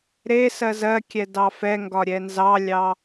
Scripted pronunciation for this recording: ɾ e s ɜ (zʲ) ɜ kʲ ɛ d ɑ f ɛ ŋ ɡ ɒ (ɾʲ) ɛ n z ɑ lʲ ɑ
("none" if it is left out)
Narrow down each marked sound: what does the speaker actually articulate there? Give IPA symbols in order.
z, ɾʲ

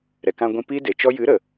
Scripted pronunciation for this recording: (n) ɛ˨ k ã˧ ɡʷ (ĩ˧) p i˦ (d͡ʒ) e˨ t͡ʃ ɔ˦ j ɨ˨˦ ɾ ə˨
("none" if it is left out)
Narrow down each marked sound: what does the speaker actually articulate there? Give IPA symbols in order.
ɾ, ĩ˧, d

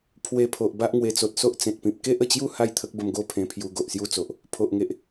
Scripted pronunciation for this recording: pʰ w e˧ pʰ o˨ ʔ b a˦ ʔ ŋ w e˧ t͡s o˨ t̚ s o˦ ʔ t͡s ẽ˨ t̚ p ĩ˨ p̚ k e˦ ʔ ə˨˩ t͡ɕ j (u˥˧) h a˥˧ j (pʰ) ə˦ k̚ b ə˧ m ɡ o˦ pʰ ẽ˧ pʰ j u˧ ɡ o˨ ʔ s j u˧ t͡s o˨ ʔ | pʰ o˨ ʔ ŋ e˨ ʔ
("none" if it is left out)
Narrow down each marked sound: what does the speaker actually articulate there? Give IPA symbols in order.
u˥˧, t̪ʰ

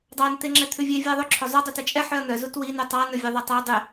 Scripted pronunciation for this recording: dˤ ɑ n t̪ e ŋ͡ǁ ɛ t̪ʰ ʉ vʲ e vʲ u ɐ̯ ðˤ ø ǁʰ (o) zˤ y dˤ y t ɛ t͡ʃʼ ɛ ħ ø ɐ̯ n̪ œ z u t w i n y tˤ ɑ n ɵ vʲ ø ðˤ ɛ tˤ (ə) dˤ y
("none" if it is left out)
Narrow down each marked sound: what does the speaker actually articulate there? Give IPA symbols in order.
ɵ, æ

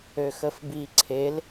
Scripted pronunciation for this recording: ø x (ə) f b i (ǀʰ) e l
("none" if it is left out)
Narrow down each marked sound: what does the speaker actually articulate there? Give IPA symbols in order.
ə, ǀʰ

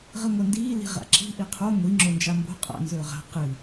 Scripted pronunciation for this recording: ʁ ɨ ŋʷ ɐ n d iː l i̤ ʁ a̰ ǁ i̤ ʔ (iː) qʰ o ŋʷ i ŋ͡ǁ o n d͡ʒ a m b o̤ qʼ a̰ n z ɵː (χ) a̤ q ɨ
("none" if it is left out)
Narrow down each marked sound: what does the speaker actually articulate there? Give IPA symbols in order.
i, ʁ

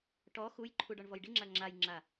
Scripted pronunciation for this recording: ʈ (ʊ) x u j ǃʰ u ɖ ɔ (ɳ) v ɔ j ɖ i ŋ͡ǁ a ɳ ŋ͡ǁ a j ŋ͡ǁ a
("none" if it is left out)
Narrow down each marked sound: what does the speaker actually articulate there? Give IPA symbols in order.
ɔ, ɳ

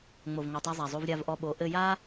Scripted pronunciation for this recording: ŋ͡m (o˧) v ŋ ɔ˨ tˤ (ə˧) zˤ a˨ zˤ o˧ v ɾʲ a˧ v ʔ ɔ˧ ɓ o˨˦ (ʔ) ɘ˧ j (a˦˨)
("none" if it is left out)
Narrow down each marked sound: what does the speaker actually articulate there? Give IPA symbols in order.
o˨, a˧, ʔ, a˦

